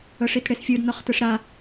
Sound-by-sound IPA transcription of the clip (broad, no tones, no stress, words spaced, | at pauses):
ɤʂitɽesfʲɯd nɔχtɯʂɾa